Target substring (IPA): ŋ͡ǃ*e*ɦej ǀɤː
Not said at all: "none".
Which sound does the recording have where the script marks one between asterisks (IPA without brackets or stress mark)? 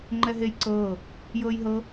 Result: ɛ